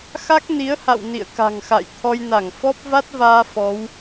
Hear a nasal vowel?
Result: no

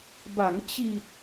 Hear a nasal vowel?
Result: no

